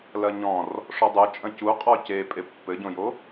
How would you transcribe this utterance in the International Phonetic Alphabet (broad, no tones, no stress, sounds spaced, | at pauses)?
l ɐ ɲ ɔ̃ r | ʂ ɔ dˤ o t͡ʃʼ ɐ̃ c u qʼ ɔ c e pʼ e pː ɘ ɟ õ j o